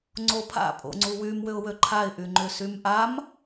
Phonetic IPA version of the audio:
ŋ͡ǀopʰa̰ pʼo̰ŋ͡ǀuwym wʏʊ̯wøǃʰaɪ̯ ʔyŋ͡ǃʏ symʔam

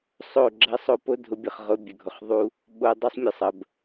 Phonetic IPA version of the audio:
sˤo˦˨ɡ͡ǁɐ˦sˤo˦ po˦dʱʊ˧bʲə˨χ ʁʊ˧ bʲə˨ɡʱʊ˨χðˤu˦ | ɓo˧dˤu˦sˤmʲə˨sˤə˨b

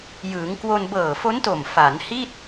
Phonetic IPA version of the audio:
jɯː˩˦ŋ kwo˧n bɤː˨˩ fo˦˥nto˨˩m fa˩˦nhi˥˩t̚

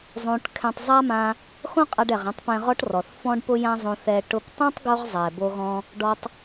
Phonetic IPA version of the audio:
zˤõ˧ʈ kʰɛ̃˧tˤzˤa˥mã˧ | xõ˥qʼa˧ɖɛ˩ʁã˧tˤ pɛ̃˧ʁɔ˥ʈrɔ˩θ fɔ̃˥ɖpʊ˥jã˥zˤõ˧ θɛ˧ ʈʊ˧ptˤõ˥tˤ ɡo˥ʁzˤɛ˩bo˧ɣɔ̃˧ | ɖɔ˧tˤ

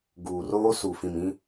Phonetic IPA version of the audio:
ɡuː˨roː˦ su˨fĩ˨m ĩ˦

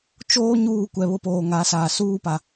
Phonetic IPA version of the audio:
t͡ʃoː˦ ɲuː˦˨kʷɛ˨βʊ˦poː˨ ŋa˨˦saː˨ suː˦pa˨

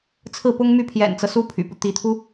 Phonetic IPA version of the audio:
t͡sʰɹ̩˥˩pʊ˥ŋmy˥˩ pʰjɛ̰˨˩nt͡sɤ˦ su˥pʰy̰˨˩pu˦ t̪i˧˥t̪ʰu˥

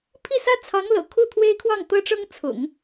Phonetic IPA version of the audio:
pʰi˥˩sä˥ t͡sʰɑ˧˥ŋlɤ̰˨˩ kʰu˥˩t̪ʰwe˥ɪ̯kʰwɑ˥˩ŋ t̪ɤ˥ʈ͡ʂɤ˥ŋ t͡sʰʊ̰˨˩˦ŋ

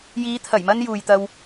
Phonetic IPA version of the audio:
jiː˨˧t̪ʰɐ˨˩j mɐ˥njuː˨jt̪ɐ˧w

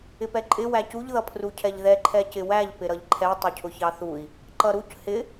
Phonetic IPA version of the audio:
ɪpɛǃʼɪ wæcuʎ ðʌpʰrucʰɛʎðɛ ǃʰɛcɪwæʎ pɪɾʌʎǃʰɛ tˤʊcʰʊçɑθui̯ | ǃʌɾuc hɪ

